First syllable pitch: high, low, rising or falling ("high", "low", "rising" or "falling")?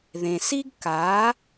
low